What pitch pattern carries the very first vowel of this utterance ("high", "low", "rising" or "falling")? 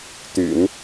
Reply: low